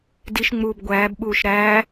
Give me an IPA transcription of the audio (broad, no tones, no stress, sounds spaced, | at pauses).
d i ʃ ŋ͡m uː b ɡʷ æː b ɓ uː ʃ ɾ æː